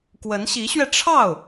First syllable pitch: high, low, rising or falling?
rising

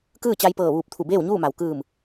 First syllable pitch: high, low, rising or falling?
falling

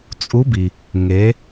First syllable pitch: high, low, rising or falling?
rising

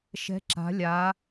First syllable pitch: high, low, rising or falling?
rising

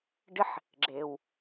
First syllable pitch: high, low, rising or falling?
high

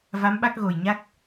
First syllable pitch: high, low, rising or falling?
rising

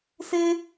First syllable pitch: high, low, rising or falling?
high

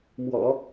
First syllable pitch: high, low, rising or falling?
low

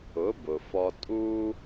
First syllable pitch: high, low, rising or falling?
rising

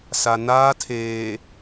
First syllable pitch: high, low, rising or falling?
low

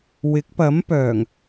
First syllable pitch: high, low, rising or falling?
rising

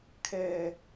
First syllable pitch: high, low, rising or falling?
low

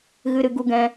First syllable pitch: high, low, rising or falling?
high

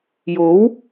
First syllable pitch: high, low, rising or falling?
rising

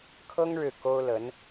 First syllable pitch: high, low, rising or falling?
high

